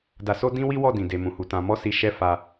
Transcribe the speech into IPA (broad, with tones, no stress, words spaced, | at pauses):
da˧so˦ dĩ˦wi˦ wɔ˦˨dĩ˨ de˨mũ˨hu˨ tã˨mɔ˧si˨ ʃɛ˧ fa˧